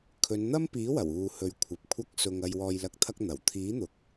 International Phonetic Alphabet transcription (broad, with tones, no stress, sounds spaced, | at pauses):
kʰ ɵ˨˧ n n̪ ɐ˥ m p iː˨˥ w ɐ˨˩ w uː˨ h ɵ˨ ɥ kʷʰ ɐ˨ p̚ kʷʰ ɐ˥ k̚ s ʊ˧ ŋ ɐ˧ j w ɔː˧ j l ɐ˧ k̚ t̪ʰ ɐ˥ k̚ n̪ ɐ˨˩ w t̪ʰ iː˨˥ n̪ ʊ˨˥ k̚